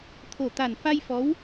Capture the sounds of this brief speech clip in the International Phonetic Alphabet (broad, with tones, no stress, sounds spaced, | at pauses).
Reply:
t̪ʰ o˨˩ t̪ a˨˩ n f a˧ j f ɔ˧˥ w